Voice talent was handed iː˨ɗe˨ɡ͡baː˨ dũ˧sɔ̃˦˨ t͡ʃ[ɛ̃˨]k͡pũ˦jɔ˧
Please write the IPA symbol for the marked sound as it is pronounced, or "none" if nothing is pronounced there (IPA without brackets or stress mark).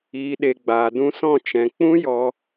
ɛ̃˨